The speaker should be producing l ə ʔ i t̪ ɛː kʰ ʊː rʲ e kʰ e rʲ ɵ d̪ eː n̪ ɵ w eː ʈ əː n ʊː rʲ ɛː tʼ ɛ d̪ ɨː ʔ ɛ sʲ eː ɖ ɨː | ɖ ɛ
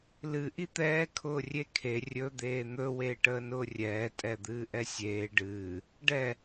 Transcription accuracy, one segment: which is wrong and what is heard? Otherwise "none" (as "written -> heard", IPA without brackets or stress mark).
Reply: ə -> ɨ